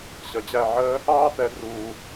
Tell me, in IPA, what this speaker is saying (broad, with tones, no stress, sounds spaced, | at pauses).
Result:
ɕ ʌ˩ d͡ʑ æ˥˩ ʕ əː˥ | ɑː˥ t̪ ɛ˩˥ d r uː˩